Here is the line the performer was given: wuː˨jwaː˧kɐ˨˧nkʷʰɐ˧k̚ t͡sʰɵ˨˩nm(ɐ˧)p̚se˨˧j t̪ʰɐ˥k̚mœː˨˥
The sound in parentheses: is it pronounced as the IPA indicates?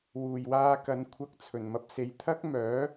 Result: yes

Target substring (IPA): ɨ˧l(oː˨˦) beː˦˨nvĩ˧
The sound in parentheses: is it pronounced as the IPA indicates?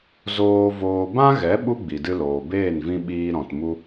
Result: no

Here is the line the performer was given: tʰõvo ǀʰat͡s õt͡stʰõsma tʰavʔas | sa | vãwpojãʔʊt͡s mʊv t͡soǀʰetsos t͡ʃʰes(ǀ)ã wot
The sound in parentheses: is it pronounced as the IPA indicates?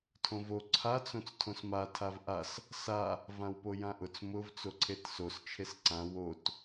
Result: yes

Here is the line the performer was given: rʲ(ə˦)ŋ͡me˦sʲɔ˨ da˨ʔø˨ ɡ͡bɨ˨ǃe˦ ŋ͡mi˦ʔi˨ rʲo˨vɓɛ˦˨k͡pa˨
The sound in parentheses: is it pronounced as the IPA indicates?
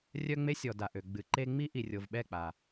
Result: no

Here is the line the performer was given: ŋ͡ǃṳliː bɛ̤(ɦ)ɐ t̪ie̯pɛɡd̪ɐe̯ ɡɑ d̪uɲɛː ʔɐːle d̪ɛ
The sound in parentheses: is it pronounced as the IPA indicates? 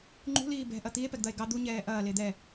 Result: no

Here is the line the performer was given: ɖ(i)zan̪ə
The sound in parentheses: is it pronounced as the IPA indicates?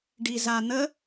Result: yes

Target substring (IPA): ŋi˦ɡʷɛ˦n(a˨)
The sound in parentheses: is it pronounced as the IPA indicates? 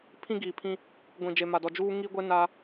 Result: no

